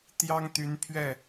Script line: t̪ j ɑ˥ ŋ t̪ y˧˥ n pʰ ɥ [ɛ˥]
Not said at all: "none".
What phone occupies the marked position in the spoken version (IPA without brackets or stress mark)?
ɛ˥˩